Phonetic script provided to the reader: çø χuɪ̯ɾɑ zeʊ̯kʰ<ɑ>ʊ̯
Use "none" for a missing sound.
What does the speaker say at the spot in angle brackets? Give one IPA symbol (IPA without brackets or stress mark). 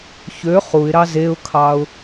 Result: ɑ